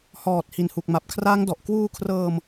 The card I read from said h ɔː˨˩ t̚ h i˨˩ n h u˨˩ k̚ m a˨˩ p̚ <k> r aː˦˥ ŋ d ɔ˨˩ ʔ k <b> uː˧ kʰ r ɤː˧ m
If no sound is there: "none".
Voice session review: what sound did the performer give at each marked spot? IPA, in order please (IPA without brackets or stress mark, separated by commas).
kʰ, w